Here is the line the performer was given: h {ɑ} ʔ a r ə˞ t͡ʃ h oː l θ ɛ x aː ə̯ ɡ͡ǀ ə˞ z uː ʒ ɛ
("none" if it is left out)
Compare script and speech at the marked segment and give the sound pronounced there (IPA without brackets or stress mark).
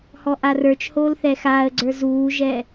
ɔ